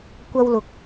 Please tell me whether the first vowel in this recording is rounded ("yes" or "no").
no